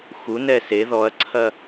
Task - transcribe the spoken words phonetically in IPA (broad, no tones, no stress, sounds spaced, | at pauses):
x u n ɛ s e ð ɔ ɐ̯ ǀʰ ɐ